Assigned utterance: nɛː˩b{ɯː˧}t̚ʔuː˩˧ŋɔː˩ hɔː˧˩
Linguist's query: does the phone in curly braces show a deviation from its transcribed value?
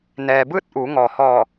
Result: yes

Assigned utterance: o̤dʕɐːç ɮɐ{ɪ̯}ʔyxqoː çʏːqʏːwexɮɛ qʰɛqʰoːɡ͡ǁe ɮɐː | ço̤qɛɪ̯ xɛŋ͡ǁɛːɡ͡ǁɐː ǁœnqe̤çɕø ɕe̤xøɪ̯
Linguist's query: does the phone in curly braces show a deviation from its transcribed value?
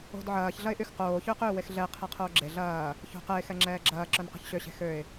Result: no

